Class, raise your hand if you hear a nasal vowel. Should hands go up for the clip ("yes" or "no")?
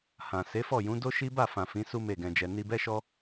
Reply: yes